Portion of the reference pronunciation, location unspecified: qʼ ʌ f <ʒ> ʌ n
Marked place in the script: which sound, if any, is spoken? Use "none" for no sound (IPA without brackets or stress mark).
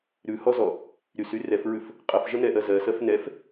ʒ